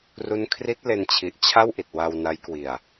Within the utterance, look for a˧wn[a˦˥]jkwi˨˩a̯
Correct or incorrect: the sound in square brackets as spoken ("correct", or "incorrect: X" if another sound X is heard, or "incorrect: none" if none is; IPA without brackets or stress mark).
correct